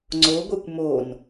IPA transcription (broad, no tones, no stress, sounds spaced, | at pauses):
ŋ͡ǀ o ɡʷ e kʷ m o n